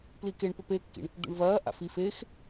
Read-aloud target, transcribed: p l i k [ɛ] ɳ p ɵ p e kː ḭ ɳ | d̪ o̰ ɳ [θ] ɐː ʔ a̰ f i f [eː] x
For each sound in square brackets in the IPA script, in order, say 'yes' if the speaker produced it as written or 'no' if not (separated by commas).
no, no, yes